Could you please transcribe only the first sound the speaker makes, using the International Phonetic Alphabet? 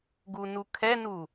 ɡ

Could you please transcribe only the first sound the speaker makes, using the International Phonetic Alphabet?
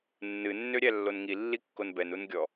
nː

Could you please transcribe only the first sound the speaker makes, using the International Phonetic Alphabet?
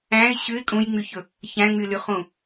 æ̃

